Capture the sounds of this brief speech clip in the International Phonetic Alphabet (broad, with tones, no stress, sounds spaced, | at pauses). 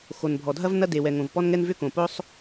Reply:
x o˩ n bʱ ɔ˩ dʱ ɐ˥ v n ɐ˥ d e˩ w ɛ˩ ŋ õ˩ v p ɔ˥ n ŋ ɛ˥ n v ʏ˥ k õ˩ p ʊ˥ sˤ